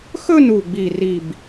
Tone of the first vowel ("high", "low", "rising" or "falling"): falling